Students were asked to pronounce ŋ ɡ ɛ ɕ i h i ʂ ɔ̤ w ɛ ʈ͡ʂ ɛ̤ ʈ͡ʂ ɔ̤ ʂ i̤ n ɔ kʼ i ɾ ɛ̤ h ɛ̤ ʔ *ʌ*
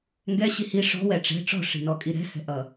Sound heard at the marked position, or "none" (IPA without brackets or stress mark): ʌ